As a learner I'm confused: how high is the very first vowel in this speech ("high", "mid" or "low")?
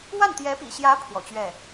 low